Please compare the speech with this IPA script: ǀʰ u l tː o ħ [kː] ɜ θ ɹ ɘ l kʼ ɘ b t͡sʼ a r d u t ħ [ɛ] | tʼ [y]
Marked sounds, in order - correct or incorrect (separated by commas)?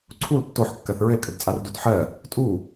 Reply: correct, incorrect, incorrect